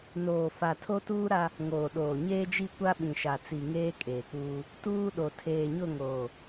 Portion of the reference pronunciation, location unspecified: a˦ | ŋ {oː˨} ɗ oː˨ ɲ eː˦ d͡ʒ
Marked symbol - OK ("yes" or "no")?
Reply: yes